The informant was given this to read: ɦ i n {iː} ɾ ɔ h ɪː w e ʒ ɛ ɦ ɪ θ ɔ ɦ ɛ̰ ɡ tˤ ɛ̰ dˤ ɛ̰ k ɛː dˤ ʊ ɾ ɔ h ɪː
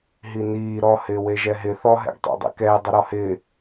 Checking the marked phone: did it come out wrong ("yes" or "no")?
no